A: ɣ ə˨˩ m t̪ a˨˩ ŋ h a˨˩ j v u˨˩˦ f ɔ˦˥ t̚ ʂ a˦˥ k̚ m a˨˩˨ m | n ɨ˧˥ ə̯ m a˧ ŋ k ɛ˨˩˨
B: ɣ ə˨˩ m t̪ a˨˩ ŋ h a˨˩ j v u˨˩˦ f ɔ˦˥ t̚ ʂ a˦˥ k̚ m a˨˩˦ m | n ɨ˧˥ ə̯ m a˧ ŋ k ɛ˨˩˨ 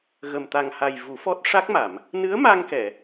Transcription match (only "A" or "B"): A